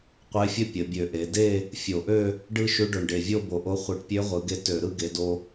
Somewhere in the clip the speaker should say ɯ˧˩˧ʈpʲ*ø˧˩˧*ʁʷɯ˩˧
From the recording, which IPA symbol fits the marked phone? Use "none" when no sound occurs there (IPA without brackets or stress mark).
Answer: ø˧˥